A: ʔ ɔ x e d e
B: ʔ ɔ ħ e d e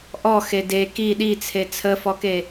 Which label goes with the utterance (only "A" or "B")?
A